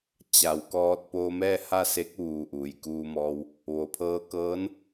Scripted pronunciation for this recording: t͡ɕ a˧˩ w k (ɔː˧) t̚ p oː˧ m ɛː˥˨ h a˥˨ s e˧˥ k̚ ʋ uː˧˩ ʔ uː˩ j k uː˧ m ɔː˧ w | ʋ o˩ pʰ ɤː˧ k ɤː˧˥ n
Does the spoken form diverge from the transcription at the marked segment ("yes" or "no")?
no